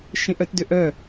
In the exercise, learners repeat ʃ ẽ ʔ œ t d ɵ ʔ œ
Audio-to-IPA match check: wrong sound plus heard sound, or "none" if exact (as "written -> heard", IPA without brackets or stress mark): ɵ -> ø